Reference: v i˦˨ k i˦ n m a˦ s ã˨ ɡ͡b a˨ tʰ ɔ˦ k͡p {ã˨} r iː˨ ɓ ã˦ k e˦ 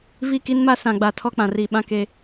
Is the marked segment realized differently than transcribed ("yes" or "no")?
no